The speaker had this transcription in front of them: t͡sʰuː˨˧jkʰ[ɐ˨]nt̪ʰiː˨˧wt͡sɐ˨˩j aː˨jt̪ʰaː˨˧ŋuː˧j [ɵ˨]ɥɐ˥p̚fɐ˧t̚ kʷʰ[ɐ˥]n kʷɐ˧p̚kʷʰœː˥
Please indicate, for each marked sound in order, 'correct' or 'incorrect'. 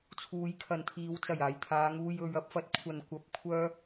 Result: correct, incorrect: ɵ˨˧, incorrect: ɐ˨

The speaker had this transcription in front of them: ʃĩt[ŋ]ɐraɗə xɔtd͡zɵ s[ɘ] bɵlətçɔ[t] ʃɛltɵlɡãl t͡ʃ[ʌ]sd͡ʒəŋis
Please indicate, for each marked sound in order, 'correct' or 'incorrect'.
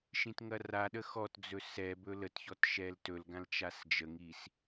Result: correct, incorrect: ɛ, correct, incorrect: a

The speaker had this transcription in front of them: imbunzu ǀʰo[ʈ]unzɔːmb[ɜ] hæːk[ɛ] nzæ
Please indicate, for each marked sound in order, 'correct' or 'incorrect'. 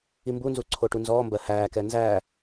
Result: correct, correct, correct

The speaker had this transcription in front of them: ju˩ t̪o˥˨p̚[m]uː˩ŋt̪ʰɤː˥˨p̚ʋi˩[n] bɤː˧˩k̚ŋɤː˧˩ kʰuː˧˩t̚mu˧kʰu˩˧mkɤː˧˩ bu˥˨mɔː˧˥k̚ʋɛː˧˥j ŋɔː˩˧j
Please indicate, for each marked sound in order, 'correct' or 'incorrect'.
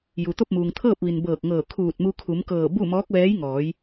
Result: correct, correct

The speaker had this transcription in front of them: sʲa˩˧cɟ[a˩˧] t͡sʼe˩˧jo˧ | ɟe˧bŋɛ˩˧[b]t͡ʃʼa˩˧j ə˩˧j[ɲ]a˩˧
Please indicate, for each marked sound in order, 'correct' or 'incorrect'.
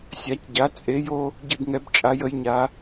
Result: correct, correct, correct

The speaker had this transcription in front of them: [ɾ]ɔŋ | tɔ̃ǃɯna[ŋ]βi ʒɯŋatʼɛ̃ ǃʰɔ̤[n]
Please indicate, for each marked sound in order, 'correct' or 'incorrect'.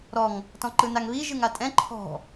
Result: correct, correct, incorrect: none

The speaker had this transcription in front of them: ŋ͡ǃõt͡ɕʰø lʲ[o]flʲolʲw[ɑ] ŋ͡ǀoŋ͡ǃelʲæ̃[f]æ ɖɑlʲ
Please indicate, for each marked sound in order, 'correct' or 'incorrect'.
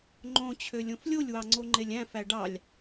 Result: incorrect: õ, correct, correct

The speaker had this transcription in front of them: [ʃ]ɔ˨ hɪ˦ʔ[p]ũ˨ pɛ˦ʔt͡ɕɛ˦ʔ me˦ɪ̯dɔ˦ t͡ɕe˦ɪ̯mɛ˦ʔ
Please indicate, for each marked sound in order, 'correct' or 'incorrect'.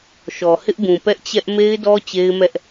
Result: correct, incorrect: b

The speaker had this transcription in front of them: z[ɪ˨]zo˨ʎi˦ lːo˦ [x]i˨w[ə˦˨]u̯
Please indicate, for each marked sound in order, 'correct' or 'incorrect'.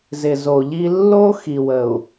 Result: correct, correct, incorrect: ə˨

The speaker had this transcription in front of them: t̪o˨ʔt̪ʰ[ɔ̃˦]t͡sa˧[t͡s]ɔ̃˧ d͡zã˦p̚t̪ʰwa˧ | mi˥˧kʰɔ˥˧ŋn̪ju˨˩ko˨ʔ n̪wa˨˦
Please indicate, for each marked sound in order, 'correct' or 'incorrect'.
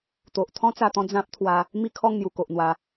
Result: correct, incorrect: t̪

